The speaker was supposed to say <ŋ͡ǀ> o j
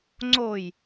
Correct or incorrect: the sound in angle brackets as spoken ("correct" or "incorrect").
correct